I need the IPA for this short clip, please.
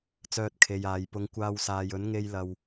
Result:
t͡s œː˧ t̚ kʰ e˨ j aː˨ j p ʊ˨˧ ŋ kʷ aː˧ w s aː˨ j ɵ˨˥ n ŋ e˧ j l ɐ˨ w

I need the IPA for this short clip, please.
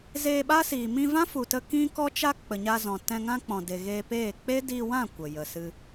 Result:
z eː˧ ɓ a˦ s iː˨ m ĩ˧ v ã˦ f u˨ t ə˧ k ĩ˦ k ɔ˦ t͡ʃ a˦ k͡p ə˨ ɲ a˧ z ɔ̃˨ t ɛ̃˧ ŋ ã˦ k͡p ɔ̃˨ d e˨ ɣ eː˧ p eː˦˨ k͡p e˦ d iː˧ w ã˦˨ kʷ ə˨ j ə˨ s ɨ˧

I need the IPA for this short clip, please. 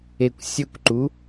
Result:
e kʷ sʲ ɵ kʷ ǃ u

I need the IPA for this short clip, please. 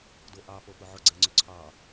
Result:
d o ʔ ɑ p o p ʊ ʕ ʊ ɡ͡ǀ ɛ ŋ͡ǀ ø ǀʰ ɑ

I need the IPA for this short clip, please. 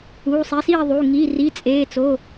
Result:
uː˩˧˩ sˤ i˩˧˩ s iː˥˨ ðˤ u˩˧˩ ŋ i˩˧˩ r i˩˧˩ t͡sʼ eː˩˧˩ t͡s o˩˧˩

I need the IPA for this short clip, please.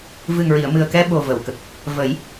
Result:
v ɨ˨˩ ŋ ɹ i˨˩˨ ə̯ m ɨ˨˩ ə̯ k ɛ˧ ɓ o˨˩ v ə˨˩˨ w k ə˨˩ k̚ | v ə˨˩˦ j

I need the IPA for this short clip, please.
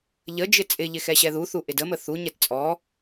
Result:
ʎ ə d͡ʒ ɪ t͡sʼ ɪ ʎ ɪ x ɛ ɕ ɛ ð u θ u ʔ ɪ d ə m ə θ u ɲ ɛ t t͡sʼ ɔ

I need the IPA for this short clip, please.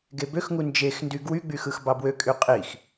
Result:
ɡ e b ø x ŋ u n d͡ʒ e x n d y ɡ w y ɡ͡b y x ɯ x b ɑ b w ø kʼ y qʼ i x

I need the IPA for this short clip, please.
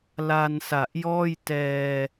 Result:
l a˧ n s a˨˩ ʔ j ɔː˥˩ j t ɛː˧

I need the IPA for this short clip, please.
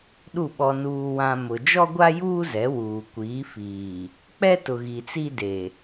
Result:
ɗ u˦˨ ɓ ɔ˨ n uː˨ w ã˨ m ʊ˨ d͡ʒ ɔ˦ ɡʷ a˦ j uː˦ z ɛ˨˦ w uː˨ kʷ iː˨˦ f iː˨ | k͡p ɛ˦ t ʊ˨ ɣ i˨ t͡s i˦ d e˨

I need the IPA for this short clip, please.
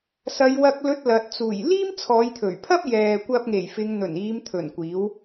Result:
s ɐ˨˧ j w ɐ˧ k̚ l ɵ˧ t̚ l ɐ˨ t̚ t͡s uː˨˩ j l iː˥ m t͡sʰ ɔː˨˧ j t̪ʰ ɵ˨˩ ɥ pʰ ɐ˥ p̚ j ɛː˨ kʷ ɐ˧ p̚ ŋ e˨˩ j f ɪ˨˧ ŋ n̪ ɵ˨˩ n iː˨˧ m t̪ʰ ɵ˨˩ n kʷ iː˨˥ w

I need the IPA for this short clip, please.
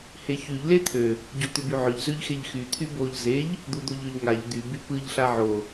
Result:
h e ç y ʎ l e t̪ʰ ø | ɟ o t̪ ʏ b y ʕ ʏ ʎ z ø ʎ x e ʎ x y t̪ʰ y b o ʎ z e ʎ | d̪ u d̪ o ʎ ø ʎ ŋ a ʎ d̪ y b y p ɯ ʎ ɬ a ʕ o

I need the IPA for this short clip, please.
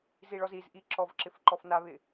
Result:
z i ɭ ɔ z i z ʔ i ǁ ɔ v ǁ ɪ f ǃ ɔ f n a β ɪ

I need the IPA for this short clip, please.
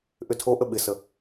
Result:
ʔ ʏ tʰ o ʔ ə ɓ ɪ s ə

